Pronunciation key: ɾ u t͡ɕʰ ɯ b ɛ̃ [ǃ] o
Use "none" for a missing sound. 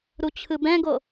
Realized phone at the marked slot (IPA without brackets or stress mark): ɡ